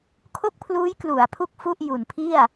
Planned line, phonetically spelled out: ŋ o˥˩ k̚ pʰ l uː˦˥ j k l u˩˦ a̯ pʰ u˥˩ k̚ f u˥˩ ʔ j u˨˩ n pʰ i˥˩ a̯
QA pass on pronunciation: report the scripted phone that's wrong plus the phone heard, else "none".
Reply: ŋ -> kʰ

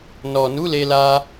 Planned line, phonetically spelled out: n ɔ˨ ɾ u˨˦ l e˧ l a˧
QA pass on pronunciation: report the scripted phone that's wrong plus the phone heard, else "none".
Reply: ɾ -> n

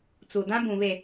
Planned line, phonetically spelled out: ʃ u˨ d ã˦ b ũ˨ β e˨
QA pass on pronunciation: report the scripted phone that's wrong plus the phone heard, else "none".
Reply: ʃ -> t͡s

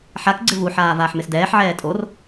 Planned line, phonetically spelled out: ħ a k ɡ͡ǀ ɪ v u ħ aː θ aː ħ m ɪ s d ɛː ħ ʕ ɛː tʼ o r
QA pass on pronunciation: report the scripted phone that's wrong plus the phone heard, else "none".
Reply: θ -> v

